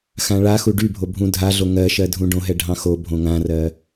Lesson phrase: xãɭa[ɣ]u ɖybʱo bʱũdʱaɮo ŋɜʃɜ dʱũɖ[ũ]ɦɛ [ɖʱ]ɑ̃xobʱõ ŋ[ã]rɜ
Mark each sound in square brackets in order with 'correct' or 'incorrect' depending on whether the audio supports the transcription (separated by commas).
incorrect, incorrect, correct, correct